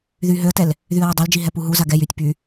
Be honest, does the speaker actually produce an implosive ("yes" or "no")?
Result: no